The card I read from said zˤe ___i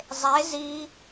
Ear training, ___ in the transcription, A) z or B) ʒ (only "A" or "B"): A